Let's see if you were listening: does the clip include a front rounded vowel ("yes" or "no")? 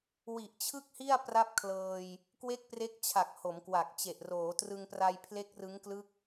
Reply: no